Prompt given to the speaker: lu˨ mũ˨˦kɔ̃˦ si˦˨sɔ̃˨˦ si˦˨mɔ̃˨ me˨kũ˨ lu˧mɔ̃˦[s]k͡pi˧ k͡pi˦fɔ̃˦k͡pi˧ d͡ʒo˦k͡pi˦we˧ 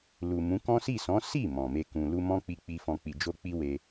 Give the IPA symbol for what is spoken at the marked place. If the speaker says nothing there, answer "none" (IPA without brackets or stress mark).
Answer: none